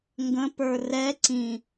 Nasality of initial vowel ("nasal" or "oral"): nasal